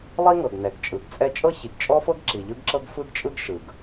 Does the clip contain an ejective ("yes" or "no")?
yes